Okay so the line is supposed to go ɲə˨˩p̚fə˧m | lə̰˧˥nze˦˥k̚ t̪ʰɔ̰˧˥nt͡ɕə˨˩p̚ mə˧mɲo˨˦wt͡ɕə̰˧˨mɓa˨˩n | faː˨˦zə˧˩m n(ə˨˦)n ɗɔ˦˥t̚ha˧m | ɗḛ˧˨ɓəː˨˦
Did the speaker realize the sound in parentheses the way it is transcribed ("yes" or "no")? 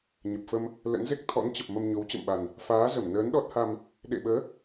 no